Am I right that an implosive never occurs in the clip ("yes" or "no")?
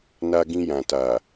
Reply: yes